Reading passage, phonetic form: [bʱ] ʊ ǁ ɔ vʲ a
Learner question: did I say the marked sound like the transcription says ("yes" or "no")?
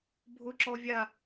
yes